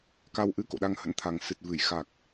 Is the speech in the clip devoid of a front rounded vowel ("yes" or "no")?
yes